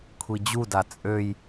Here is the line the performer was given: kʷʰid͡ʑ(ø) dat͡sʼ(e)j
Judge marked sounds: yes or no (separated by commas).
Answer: no, no